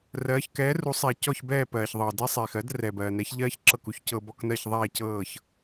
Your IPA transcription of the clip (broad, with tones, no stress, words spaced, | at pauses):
rɜː˩˥ç kɛː˩˥ru˩˥sˤe˩ cɔ˥˩çbɛː˥˩ pɜː˩çðˤɤː˩dɛ˥ sˤeː˩xɜ˩˥d rɛː˩bɜː˩nɛ˩˥ç ʎɜː˥ç ǁɤ˥˩ku˩˥ç cɤ˧ bɔ˧knɜ˥˩ç ðˤɛː˥˩cɤː˥˩ç